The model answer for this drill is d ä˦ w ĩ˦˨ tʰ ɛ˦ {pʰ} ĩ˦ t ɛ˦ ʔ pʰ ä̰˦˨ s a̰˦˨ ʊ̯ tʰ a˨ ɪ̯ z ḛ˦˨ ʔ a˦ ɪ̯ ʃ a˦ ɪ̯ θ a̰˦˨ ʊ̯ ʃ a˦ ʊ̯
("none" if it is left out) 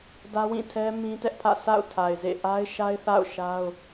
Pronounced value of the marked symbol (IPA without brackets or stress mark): m